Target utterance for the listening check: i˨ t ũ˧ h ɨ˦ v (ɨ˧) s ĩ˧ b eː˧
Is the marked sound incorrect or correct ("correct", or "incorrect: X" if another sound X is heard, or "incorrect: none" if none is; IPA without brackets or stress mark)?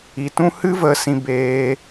incorrect: ə˧